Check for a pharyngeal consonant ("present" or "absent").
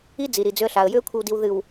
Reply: absent